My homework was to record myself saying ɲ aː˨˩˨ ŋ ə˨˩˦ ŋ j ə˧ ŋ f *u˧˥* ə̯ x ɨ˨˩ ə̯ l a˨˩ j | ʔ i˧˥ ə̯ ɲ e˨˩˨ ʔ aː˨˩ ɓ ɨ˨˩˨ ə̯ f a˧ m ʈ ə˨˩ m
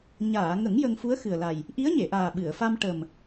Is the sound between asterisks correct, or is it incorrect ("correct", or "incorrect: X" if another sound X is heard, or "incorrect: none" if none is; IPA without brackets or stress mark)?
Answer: correct